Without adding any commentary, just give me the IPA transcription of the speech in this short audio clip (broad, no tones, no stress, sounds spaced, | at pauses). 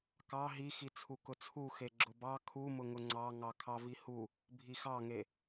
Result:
k ɑ ɦ i x i t͡sʰ u k ʊ t͡sʰ u x e ɡ͡ǁ ʊ b ɑ kʰ u m ʊ ŋ ʊ ŋ͡ǀ ɑ ŋ ɑ kʰ ɑ v i h u | bʱ i x ɑ ŋ e